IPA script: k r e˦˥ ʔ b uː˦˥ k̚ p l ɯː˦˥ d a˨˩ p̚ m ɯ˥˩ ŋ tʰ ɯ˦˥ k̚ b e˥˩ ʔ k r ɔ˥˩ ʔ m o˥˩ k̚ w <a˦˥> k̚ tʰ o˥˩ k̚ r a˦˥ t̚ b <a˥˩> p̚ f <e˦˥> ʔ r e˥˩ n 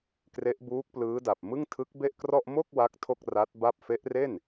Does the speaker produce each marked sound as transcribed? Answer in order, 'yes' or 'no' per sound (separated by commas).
yes, yes, yes